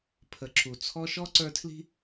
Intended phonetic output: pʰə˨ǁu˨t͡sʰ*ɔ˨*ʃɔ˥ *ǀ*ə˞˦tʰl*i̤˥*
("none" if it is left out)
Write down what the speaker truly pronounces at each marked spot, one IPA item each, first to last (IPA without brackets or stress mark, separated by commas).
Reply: ɔ˦, ǀ, i̤˥